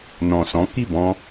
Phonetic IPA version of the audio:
nɔ̃˨sɔ̃˨˦ki˦˨ bɔ̃˧

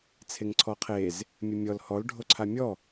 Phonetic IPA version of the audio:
t͡sʰeŋǀʰɔqʰez | mʲɘmʲɔl hɔl ɖʱoǀʰamʲɔ

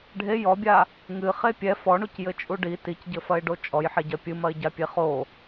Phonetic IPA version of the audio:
ɖʱe jɔbʲa | ŋɨχe pʲɛ fɔɳucjɘt͡ʃʼu ɖi ticɟɘfɐɪ̯ɖo t͡ʃʼɔjħeɟɐ pʲɨmɐɪ̯ɟapʲe χo

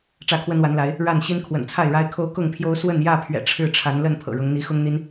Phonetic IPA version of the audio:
ʈ͡ʂä˥˨kʰwə˦nwa˨˦nla˨˦ɪ̯ | ɻa˥˨nɕi˦n kʰwə̰˨˩nt͡sʰa˥˨ɪ̯ɻa˦ɪ̯kʰo˦ʊ̯ kʊ˥˨ŋpʰjo˦ʊ̯ swə˥˨njä˥˨pʰɥɛ̰˨˩ ʈ͡ʂʰɻ̩˥˨ʈ͡ʂʰa˨˦nlə˥˨n pʰɤ̰˨˩ɻʊ˨˦ŋ n̪i˨˦xʊ˦ŋn̪i˦n

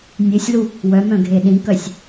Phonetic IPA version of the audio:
nʲesʲlu | wœmœ̃ ɡʱeɗĩkœsʲ

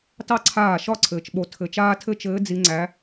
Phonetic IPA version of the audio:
tɑ˥ǀʰaː˥˩ ʃɒ˥˩ǀʰɘː˨t͡ʃɓo˨ tʰɘ˨˦t͡ʃaː˥tʰɘ˥ t͡ʃɘː˨˦ d͡zi˨˦ŋ͡ǀæ˨˦

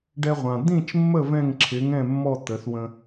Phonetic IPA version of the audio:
ɖɛ˧ʁʷã˩ d̪ĩ˥˩t͡ʃmːə˥˩ vɛ̃˥˩ŋǁʰɪ˩˥ŋɛ̃˥˩mːɔ˥˩ t̪ə˩˥θwə̃˧

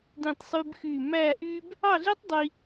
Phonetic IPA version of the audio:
dĩ˥˧tˤsˤy˥bxy˥˧ mæ˥˧ʔy˥b | ɑ˥˧ɮe˥tˤ dˤi˥

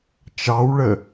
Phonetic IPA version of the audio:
t͡ʃɑwɭə

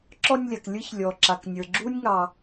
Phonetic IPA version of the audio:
ǁɔ˧nʲlʲa˨k lʲɯ˦ç lʲɔ˨ǁa˨k nʲə˞˨ɡ͡ǁu˦nʲŋɑ˧

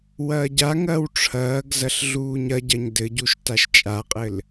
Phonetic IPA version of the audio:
wɐːɟaŋɐːw ʈ͡ʂʰɐːɡ zɐɬɮuːɲɐɟɐɲ dɘɟuʃ taʃt͡ʃʼaqʼɘl

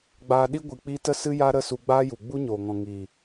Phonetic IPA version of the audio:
ɡ͡baː˧ɗi˦ ɡʷɨ˧k͡pi˦ tə˦sɨ˦ja˦ ɾə˦˨su˧ɡ͡baː˦ju˨ ɡ͡bu˦ɲoː˨ŋɔ̃˨ ŋiː˨

